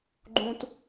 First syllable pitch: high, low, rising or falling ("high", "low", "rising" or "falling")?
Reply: high